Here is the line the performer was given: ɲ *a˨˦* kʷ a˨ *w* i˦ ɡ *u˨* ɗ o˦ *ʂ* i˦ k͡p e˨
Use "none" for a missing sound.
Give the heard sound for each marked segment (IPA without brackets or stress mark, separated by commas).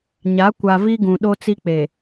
a˨˦, v, ũ˨, t͡s